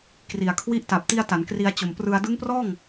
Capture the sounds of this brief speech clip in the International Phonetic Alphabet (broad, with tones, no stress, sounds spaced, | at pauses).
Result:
k r i˨˩ a̯ kʰ w i˦˥ ʔ t a˨˩ p̚ t i˧ a̯ t a˩˦ n k r i˧ a̯ t͡ɕ o˨˩ m p r ɯ˧ a̯ d ɯ˦˥ ŋ p r ɔː˥˩ ŋ